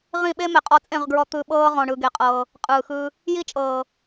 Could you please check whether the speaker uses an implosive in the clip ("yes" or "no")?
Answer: yes